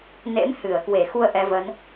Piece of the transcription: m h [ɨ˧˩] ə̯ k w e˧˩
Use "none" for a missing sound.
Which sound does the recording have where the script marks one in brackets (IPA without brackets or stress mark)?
ɨ˧˩